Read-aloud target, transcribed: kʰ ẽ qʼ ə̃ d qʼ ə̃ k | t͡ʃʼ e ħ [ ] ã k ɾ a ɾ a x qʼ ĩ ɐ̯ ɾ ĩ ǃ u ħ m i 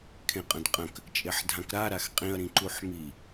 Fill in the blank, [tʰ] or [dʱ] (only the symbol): dʱ